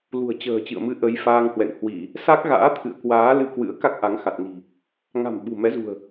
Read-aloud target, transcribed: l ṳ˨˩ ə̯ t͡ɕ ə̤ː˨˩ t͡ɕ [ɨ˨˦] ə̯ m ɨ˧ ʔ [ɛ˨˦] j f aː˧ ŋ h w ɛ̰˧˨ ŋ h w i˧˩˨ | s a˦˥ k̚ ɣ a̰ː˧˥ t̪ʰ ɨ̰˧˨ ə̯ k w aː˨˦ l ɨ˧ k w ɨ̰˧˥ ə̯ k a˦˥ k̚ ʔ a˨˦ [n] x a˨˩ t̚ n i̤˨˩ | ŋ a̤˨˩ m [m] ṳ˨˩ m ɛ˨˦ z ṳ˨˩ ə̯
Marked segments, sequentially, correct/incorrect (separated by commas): incorrect, incorrect, incorrect, incorrect